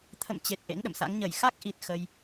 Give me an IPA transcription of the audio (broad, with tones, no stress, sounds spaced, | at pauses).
t̪ʰ ə̰˧˨ m t͡ɕ e˨˩ t̚ ʔ ḛ˧˥ ŋ ɗ ə̰˧˨ m s a̰˧˥ ŋ ɲ ə˧˩ j x a˦˥ k̚ ʔ i˨˩ t̚ x ə˧ j